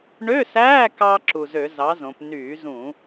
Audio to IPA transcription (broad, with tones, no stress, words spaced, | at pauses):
ɳø˧˥˧sæː˧˥˧ kɑ˧ ǁu˨˩zø˧˩˧ zɑ˨˥zõ˩˧p nyː˧˩˧zũ˧˩˧